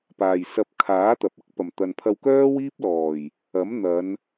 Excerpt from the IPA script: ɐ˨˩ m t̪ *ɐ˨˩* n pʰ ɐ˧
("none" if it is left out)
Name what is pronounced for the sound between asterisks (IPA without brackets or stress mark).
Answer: ɐ˨